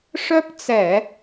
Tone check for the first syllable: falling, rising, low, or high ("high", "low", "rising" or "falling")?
high